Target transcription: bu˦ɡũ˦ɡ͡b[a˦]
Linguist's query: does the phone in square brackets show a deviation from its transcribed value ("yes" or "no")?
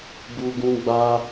no